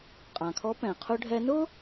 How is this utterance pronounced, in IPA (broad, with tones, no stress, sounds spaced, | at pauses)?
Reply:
qʼ ã˩ kʰ ɔ˧˥ p ɛ̃˩ qʰ ʊ˧ ɖʱ ɛ˧ n ʊ˥